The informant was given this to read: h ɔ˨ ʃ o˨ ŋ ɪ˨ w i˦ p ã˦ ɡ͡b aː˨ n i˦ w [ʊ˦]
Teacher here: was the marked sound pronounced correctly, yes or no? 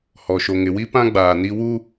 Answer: no